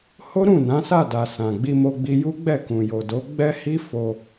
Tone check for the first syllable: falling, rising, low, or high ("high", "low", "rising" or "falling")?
high